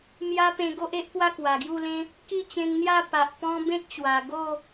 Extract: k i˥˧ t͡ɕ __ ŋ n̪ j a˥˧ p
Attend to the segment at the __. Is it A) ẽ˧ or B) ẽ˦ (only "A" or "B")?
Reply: A